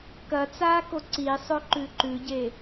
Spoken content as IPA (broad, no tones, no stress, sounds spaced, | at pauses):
k ɐ t͡s aː k o ǀ i sˤ ɵ ǃ ʉ ǃ ʉ ɟ e